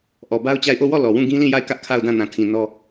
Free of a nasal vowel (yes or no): no